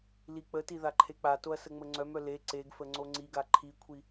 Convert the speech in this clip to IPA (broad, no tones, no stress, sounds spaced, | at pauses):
l i k͡p ə t i ð a ǃʰ e k͡p a t o ɐ̯ s ə ŋ͡m ə ŋ͡ǀ œ m œ l e ǀ e ɡ f ə ŋ͡ǀ o ŋ͡ǀ i ɡ a ǃʰ i kʷʰ i